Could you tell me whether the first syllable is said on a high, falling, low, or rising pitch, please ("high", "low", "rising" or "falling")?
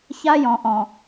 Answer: high